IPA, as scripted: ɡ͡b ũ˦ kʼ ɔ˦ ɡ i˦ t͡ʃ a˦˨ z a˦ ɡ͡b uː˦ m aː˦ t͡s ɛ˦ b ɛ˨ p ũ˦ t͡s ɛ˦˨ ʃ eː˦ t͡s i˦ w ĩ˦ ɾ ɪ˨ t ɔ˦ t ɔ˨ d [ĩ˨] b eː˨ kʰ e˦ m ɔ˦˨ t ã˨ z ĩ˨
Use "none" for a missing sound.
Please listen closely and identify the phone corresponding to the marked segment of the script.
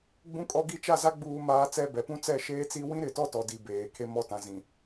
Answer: i˨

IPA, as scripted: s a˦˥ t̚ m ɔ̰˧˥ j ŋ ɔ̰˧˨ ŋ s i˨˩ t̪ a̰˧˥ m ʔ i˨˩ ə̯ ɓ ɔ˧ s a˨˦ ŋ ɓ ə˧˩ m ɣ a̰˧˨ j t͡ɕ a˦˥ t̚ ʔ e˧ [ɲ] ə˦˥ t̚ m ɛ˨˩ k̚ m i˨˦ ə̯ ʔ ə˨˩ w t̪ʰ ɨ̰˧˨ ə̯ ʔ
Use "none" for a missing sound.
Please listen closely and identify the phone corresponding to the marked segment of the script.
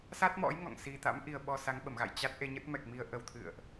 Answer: ɲ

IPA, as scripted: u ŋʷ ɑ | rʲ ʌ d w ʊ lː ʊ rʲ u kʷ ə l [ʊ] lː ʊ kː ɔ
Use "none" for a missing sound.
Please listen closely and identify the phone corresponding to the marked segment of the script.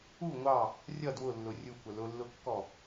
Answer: ʊ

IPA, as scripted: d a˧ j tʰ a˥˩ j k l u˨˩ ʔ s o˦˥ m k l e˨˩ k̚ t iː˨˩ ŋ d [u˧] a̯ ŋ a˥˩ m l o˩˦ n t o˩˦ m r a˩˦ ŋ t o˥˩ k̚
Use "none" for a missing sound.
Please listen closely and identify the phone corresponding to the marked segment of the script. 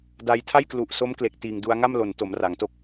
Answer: u˧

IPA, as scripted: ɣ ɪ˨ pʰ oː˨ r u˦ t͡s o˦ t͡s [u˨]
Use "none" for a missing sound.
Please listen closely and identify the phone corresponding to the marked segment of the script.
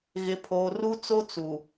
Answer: u˨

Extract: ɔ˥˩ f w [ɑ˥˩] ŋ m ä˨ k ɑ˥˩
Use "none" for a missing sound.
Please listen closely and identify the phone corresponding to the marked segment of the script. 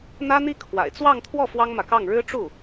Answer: ɑ˥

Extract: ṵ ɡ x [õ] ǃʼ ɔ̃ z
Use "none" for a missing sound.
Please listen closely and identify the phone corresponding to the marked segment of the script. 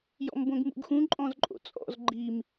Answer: ũ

